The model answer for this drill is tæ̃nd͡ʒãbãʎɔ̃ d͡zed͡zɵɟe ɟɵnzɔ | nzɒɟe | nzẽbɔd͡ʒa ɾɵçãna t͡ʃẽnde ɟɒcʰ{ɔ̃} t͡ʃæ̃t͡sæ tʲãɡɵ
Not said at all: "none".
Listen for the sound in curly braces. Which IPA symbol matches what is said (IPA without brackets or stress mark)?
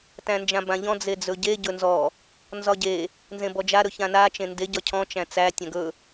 ɔ̃